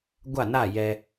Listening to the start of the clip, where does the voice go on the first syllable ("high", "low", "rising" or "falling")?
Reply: falling